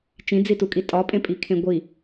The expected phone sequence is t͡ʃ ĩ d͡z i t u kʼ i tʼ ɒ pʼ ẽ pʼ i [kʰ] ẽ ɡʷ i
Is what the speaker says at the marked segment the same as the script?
yes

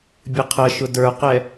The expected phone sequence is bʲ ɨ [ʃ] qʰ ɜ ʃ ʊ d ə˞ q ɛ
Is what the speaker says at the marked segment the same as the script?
no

